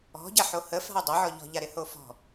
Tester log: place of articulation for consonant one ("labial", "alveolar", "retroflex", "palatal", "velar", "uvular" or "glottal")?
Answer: palatal